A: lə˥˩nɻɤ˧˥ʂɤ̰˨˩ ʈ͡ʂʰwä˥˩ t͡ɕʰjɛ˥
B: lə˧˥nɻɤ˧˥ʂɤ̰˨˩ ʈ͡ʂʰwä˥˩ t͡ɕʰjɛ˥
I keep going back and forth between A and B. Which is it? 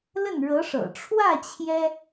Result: A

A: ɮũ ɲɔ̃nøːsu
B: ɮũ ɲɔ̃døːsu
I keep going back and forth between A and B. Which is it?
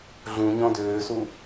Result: B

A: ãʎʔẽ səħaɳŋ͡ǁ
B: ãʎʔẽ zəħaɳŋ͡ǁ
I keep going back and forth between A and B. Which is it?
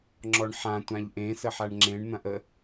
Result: A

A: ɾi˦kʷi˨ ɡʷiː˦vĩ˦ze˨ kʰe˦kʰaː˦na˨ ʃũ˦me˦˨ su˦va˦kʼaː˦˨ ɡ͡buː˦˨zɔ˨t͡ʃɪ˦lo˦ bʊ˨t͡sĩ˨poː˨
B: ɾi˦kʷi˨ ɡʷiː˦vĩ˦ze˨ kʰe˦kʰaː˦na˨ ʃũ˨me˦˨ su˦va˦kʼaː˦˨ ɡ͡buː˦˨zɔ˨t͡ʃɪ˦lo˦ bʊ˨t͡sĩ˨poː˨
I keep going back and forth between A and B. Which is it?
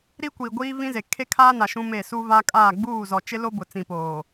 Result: A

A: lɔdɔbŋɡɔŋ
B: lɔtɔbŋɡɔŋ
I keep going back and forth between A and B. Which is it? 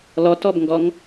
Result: B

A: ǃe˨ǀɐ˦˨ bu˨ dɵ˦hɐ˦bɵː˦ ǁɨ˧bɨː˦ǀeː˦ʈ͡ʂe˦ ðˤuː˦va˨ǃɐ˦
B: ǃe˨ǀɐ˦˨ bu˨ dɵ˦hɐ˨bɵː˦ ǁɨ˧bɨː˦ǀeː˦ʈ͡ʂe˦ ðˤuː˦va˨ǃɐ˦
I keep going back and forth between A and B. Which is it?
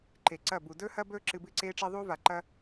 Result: A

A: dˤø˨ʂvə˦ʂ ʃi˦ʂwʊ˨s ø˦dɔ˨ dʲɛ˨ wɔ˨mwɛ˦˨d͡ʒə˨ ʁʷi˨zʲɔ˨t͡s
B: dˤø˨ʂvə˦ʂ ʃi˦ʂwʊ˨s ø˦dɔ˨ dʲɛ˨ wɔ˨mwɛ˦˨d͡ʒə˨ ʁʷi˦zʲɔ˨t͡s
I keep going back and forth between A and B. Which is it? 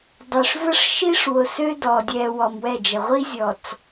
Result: B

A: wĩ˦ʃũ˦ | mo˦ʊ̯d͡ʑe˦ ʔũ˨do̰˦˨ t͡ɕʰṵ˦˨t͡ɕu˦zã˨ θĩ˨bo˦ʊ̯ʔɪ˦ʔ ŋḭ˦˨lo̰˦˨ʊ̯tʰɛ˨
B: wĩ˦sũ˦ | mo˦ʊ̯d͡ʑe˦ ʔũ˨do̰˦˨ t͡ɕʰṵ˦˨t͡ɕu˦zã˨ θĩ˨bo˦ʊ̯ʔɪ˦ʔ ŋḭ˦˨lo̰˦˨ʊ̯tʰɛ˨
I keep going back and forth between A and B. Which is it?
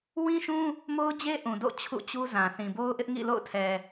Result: A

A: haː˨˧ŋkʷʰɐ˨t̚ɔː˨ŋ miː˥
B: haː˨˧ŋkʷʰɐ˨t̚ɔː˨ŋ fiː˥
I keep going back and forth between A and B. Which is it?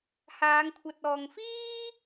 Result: B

